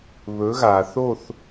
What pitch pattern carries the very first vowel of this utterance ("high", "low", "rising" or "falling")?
rising